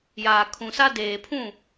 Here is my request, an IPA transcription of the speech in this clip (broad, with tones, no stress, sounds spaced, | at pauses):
j aː˨ kʰ ũ˨ s a˦ d eː˨ pʰ ũ˦˨